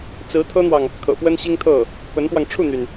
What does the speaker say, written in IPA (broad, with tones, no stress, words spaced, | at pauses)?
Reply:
t͡sɹ̩˧˥t̪ʰɤ˥n̪wɑ˨ŋ | kʰɤ̰˨˩pwə˥nɕi˥ŋt̪ʰɤ˥˩ | pə˧˥npwɑ˧ŋ ʈ͡ʂʰu˥˩n̪y˩n